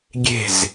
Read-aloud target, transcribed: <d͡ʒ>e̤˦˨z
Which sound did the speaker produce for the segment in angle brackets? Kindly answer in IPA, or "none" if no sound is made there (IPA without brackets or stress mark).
ɡʲ